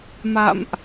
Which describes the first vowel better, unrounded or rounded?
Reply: unrounded